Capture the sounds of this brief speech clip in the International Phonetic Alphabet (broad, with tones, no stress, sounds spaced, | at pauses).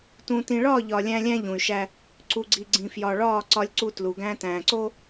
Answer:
t ũ˨ t ĩ˨ ɭ ɒː˦˨ ʎ ɒ˨ lʲ æ̃˦ lʲ æ̃˦ ʎ ũ˨ y̯ ʃ æ˦ | ǀ u˨ ɡ͡ǀ i˨ ɡ͡ǀ ĩ˨ f j ɒ˨ ɭ ɒː˦˨ ǀ ɒ˦ lʲ ǀ u˦ t l u˨ ɡ æ̃˦ t æ̃ː˨ ǀ o˦